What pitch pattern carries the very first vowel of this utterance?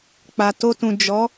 low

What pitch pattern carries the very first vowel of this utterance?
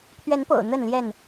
rising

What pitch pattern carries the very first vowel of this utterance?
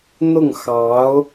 falling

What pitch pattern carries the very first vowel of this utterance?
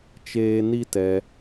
high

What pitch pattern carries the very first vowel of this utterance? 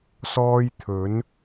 high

